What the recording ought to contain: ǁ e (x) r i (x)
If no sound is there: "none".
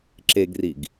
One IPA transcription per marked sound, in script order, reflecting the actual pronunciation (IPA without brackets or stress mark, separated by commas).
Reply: ɡ, ɡ